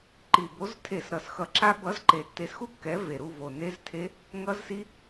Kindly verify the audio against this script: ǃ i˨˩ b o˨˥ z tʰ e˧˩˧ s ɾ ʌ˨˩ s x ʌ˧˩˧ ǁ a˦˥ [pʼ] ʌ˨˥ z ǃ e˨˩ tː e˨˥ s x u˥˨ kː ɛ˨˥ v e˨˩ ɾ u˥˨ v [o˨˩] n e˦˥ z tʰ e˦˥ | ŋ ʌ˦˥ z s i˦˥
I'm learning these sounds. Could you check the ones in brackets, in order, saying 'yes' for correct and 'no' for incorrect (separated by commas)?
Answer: no, yes